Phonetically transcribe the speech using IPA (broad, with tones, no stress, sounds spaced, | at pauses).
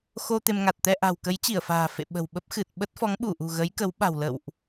x o˧ t̪ e˧ m ŋ a˨˩ t̚ t̪ ɛ˧ ʔ a̤˨˩ w k ə˨˦ j t͡ɕ i˧˩ ə̯ f a̤ː˨˩ f ḛ˧˨ ɓ ə̤˨˩ w ɓ ə˦˥ p̚ x ɨ˨˩ t̚ ɓ ə˦˥ t̚ f ɔ˨˦ ŋ ɓ u˧˩ ʔ ṳ˨˩ ɣ ə˨˦ j k ə˨˦ w ɓ a̤˨˩ w l ə̰˧˨ w ʔ